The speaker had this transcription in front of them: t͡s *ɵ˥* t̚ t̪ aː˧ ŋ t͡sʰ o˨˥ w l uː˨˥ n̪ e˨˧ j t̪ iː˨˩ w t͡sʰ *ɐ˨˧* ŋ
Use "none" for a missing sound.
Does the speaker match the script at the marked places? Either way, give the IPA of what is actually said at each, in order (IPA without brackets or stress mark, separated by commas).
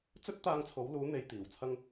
ɵ˥, ɐ˥